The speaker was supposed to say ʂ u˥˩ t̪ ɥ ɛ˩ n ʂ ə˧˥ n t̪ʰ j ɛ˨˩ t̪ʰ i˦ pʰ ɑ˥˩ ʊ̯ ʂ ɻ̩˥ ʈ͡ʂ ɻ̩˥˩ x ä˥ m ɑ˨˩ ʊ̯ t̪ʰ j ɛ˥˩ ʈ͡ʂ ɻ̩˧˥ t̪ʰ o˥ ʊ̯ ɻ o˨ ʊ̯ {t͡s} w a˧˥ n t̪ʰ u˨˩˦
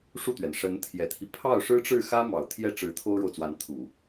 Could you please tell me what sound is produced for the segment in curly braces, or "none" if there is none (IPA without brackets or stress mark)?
t͡s